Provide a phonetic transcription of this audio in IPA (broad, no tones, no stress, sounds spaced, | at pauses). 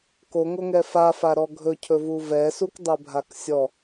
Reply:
k o ŋ o ŋ ɛ f a f a ɾ ɔ ɡʱ ɵ cʰ ɵ v u v ɛ s u k dˤ ɛ bʱ a k sʲ ɔ